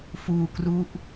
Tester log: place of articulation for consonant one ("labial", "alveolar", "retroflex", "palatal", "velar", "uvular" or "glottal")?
labial